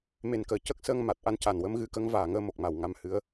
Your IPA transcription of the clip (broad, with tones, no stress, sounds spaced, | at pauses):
m e˨˩ n k əː˨˩ c ə˦˥ k̚ s ə˧ ŋ m a˨˩ t̚ ʔ a˧ n c a˨˩ n w ə˧˥ m ɣ ɨ˧˥ k ə˧˥ ŋ v aː˨˩ ŋ əː˧ m o˨˩ k̚ m a˨˩ w ŋ a˧ m h ɨ˧˥ ə̯